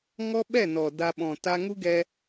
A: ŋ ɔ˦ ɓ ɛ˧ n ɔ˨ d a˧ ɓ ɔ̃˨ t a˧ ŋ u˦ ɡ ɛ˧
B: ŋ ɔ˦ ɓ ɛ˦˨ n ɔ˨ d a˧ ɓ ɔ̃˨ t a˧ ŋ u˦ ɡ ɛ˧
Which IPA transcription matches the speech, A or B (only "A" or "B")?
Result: B